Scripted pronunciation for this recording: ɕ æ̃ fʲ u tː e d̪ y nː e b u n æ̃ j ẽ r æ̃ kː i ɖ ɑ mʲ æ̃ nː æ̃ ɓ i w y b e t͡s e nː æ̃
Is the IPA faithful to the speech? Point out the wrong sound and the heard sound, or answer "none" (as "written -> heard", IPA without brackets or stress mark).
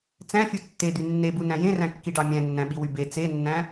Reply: ɕ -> t͡s